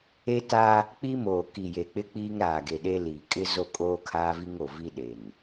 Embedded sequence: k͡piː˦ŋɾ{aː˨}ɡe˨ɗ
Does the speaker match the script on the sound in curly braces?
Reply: yes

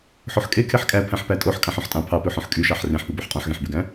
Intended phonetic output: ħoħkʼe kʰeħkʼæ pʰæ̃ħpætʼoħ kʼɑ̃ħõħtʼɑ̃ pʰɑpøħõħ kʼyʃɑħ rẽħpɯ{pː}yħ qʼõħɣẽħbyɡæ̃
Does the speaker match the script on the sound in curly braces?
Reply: no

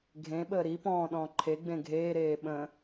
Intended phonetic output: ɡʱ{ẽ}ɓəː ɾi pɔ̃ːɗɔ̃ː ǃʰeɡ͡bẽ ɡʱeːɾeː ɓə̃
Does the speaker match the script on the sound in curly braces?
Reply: yes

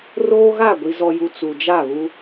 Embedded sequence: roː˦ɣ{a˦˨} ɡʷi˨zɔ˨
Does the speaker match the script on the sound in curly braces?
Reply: yes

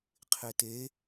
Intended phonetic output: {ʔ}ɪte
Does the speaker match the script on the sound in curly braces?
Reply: no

